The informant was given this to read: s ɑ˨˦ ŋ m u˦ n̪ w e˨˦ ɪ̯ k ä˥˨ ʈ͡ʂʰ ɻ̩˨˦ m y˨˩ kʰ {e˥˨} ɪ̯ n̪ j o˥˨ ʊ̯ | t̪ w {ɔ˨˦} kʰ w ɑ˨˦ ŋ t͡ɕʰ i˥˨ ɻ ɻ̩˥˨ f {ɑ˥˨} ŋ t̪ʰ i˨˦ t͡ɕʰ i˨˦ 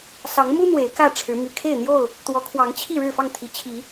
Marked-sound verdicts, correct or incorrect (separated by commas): correct, correct, correct